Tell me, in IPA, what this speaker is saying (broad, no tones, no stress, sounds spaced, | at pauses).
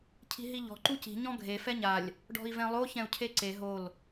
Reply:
cʰ i̤ ɦ i ʎ ɔ̤ ǃ u c i̤ ɲ ɔ̃ ɡʱ e f ɛ ɲ a lʲ | ɖ ɔ̤ i̯ v ɛ̃ lˠ o ç ɛ̃ u̯ cʰ e ǀ e ɦ o l